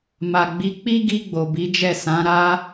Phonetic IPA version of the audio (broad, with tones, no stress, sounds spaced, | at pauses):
m a˨ ɡ͡b i˨˦ k͡p i˦ ɡ i˧ ɡ͡b o˨ b i˨˦ d͡ʒ ɛ˦˨ s ã˨˦ ɾ a˦